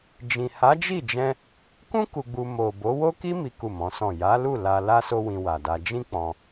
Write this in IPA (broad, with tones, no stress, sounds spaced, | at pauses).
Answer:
d͡ʒ ĩ˨ h a˨˦ d͡ʒ i˦˨ d͡ʒ ɛ̃˧ | k ũ˦ k u˧ ɡ͡b u˧ m o˨ b o˨˦ w o˦ k i˦ m i˦ k u˦˨ m ɔ̃˨˦ s ɔ̃˦˨ j a˨˦ l u˦˨ l a˧ l a˦ s o˦ w ĩ˧ w a˨ d a˧ d͡ʒ ĩ˦ k͡p ɔ̃˧